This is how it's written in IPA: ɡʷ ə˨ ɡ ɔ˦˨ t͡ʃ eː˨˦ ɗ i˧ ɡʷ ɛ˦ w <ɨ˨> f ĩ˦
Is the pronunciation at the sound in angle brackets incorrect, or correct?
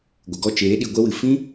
correct